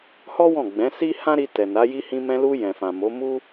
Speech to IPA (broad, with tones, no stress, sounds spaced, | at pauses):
h ɔ˦ w ɔ̃˦˨ ɡ͡b ɛ̃˨˦ s i˦ h ã˦ ɾ i˧ t ɛ˨ n a˨˦ j i˧ h ĩ˧ m ɛ̃˧ l u˧ j ɛ̃˨ f ã˨ m o˨˦ m u˦